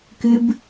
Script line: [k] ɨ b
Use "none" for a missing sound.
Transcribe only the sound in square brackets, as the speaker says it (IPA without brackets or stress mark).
k